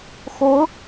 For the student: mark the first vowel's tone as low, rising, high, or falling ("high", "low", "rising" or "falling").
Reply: rising